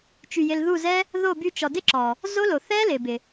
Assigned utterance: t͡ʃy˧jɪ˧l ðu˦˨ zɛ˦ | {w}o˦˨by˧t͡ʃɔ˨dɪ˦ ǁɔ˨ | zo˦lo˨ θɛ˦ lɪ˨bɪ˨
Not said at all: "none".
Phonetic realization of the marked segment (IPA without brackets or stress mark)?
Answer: ð